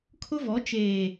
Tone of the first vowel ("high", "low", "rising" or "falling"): high